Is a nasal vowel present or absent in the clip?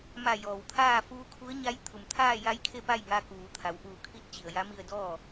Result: absent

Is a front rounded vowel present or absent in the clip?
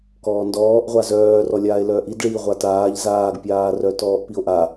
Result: present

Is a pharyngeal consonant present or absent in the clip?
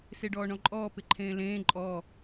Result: absent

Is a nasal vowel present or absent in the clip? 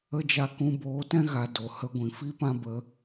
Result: present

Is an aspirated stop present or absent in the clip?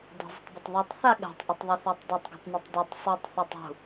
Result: absent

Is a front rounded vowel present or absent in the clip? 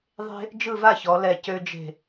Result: present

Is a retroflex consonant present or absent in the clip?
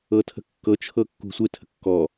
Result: absent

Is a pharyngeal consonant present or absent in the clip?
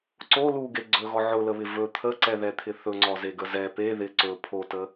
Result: present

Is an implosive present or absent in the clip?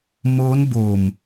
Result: absent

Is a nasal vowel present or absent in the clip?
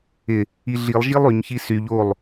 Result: absent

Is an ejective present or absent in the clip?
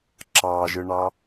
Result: absent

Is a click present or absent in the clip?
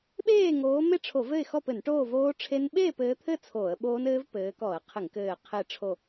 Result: absent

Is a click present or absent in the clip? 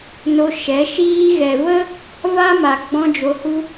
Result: absent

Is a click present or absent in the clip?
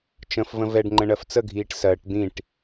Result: present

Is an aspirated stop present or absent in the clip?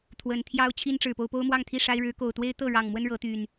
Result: present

